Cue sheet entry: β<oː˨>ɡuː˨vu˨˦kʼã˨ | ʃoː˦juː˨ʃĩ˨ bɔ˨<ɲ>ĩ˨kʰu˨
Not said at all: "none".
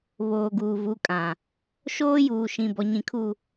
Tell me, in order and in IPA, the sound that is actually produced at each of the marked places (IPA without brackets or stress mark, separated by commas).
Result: oː˨, ɲ